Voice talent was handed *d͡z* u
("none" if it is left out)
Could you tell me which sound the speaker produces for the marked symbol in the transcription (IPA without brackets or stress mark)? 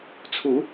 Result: t͡sʰ